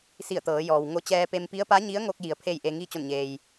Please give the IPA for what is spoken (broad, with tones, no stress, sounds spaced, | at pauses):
s i˧˩ ə̯ t̪ ɤː˩˧ j ɔː˩ w ŋ o˧˥ t͡ɕ ɛː˧ p e˧ m p i˧˥ ə̯ p a˧˥ ɲ i˧˥ ə̯ ŋ o˧ k̚ j i˩˧ ə̯ pʰ e˥˨ j ʔ e˧ ŋ i˥˨ t͡ɕ o˧˩ n ɲ eː˩ j